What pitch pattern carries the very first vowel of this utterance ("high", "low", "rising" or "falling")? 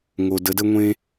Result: low